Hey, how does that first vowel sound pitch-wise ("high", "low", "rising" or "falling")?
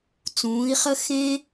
rising